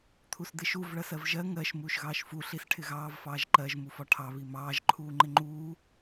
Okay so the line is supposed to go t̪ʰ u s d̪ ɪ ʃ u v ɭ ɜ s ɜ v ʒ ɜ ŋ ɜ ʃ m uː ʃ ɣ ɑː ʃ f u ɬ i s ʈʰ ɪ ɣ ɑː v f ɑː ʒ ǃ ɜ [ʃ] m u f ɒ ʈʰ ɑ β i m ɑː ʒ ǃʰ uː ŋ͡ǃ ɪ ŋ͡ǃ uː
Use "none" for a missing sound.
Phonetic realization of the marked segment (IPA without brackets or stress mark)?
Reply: ʒ